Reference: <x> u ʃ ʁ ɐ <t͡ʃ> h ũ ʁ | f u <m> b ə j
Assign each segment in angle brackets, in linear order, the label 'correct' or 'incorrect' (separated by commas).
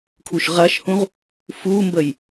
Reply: incorrect, incorrect, correct